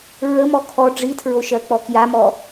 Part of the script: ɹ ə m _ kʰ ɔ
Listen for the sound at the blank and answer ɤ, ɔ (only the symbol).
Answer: ɔ